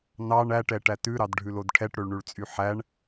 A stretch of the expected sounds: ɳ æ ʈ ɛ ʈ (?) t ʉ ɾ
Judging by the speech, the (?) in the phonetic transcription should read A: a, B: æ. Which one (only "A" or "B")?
B